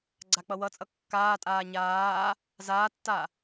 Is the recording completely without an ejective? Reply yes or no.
no